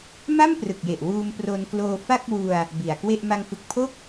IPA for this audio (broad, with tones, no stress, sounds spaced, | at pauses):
m a˥˩ m p r ɯ˨˩ k̚ j e˨˩ ʔ w uː˧ m p r o˧ n k l oː˧ f a˥˩ k̚ w u˧ a̯ | b i˨˩ a̯ k w e˥˩ ʔ m a˧ ŋ f ɯ˨˩ k̚ pʰ o˥˩ k̚